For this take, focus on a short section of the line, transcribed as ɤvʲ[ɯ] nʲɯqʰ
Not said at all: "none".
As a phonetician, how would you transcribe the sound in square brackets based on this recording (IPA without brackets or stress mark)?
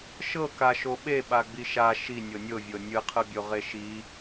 ɤ